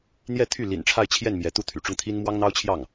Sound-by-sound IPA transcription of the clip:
n̪jɛ˥˧t̪ʰy˥˩ lḭ˨˩nʈ͡ʂʰa˥˧ɪ̯t͡ɕʰjɛ˥˩n mjɛ˧˥t̪u˥˩ t̪ʰy̰˨˩ʈ͡ʂʊ˥˩ŋt̪ʰi˥n mwɑ˥ŋn̪ɑ˥ʊ̯ t͡ɕʰjɑ˥˩ŋ

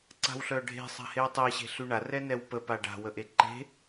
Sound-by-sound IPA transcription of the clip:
ǀa̤wɬœɖʱe̤ sˤa̤hewtˤe ɕe̤ɬyɳa rɛnɛwpə paɖa̤ wəʔeǃe̤

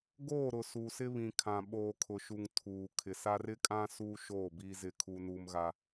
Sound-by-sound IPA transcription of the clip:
ɡoː˦˨ɾʊ˨ su˨sɪ˦ βĩ˨kʰã˨ ɓoː˨kʰʊ˨ʃu˨ŋ tʰuː˨ kʰɪ˨sa˦r ɪ˦kʼã˦ suː˦ʃoː˦˨ biː˦zɪ˦˨kʰu˦ nuː˦mɣa˦

